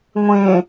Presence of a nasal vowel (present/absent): present